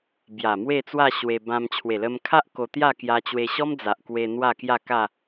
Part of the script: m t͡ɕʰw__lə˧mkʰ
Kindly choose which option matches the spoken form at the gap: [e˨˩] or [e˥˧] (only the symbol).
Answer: e˨˩